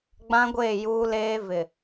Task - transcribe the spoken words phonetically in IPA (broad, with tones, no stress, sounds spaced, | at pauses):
ɡ͡b ã˦ ɡʷ eː˦˨ j uː˦ l eː˦ v ɪ˨